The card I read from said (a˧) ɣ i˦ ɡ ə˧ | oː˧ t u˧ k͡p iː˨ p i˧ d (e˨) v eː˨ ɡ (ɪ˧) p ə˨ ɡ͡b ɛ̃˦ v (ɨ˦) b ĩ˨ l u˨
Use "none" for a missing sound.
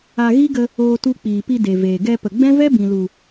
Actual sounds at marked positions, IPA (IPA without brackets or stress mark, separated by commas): a˧, e˨, ɛ˧, ɛ˦